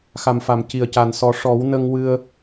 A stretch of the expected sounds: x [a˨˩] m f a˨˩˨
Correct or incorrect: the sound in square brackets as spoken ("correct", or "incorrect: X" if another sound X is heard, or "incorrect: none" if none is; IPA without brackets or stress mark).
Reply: correct